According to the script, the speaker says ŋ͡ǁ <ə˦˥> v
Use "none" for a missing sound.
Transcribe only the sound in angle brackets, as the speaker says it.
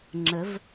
ə˩˧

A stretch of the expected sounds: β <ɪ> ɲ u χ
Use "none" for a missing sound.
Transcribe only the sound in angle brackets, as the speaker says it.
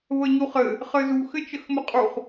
ə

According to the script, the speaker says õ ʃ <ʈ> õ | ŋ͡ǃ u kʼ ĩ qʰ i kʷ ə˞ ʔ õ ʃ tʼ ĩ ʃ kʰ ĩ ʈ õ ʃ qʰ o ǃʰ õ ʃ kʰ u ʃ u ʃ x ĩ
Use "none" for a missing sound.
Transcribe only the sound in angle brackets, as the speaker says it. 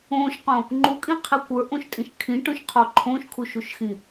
q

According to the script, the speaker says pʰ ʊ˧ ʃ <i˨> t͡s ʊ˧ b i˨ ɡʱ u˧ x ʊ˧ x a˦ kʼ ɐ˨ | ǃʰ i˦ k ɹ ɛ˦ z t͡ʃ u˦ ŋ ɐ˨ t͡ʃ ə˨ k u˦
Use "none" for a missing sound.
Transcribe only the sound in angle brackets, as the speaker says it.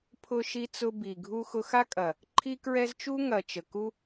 i˧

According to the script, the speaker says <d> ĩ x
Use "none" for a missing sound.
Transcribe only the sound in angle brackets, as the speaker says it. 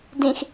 d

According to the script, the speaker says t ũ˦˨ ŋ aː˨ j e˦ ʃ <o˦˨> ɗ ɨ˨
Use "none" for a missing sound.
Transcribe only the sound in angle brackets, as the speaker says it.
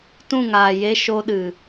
o˦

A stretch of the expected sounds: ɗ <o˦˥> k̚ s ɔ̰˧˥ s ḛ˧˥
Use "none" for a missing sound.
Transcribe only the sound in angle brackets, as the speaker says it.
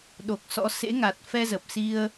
o˨˩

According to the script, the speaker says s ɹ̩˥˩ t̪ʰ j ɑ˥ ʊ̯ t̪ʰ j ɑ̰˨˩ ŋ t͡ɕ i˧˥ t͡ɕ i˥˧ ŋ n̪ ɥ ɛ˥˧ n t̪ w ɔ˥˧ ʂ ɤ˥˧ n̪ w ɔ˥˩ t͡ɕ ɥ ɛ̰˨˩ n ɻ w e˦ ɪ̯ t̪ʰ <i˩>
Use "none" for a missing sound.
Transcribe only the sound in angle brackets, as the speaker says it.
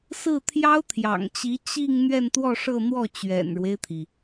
i˩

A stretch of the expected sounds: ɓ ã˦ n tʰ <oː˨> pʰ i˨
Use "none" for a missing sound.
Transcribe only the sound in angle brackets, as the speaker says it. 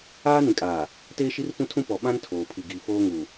oː˨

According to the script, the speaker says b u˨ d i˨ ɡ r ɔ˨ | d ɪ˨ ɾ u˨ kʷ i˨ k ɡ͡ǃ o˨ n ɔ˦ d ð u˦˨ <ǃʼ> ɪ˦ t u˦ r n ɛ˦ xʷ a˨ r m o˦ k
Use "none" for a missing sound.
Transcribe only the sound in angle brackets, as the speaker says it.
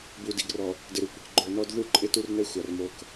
ǃʼ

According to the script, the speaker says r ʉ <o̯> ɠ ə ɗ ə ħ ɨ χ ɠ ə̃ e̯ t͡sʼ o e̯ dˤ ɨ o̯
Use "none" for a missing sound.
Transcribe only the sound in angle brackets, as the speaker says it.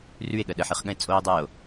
e̯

